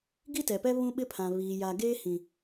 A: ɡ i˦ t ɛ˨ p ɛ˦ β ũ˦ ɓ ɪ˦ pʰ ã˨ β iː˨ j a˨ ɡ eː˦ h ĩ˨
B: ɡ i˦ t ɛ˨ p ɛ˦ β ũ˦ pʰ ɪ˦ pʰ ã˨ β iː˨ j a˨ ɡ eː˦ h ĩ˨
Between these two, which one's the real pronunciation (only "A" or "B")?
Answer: A